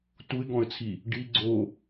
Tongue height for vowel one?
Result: high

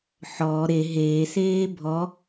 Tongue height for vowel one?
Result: mid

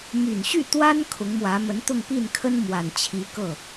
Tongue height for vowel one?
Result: high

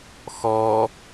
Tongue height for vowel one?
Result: mid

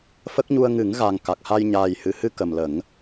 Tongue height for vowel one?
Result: mid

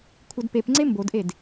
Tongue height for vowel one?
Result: mid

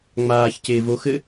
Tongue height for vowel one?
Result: low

